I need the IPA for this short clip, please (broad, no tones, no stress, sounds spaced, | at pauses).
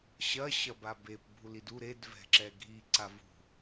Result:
ɕ ɐ ɕ ɐ b a b e p bʱ u l i d u ɾ e d v ɛ̤ ǁ ɛ ɡʱ i ǀ a v ṳ